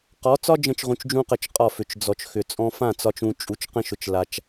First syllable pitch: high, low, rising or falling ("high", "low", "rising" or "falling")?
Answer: rising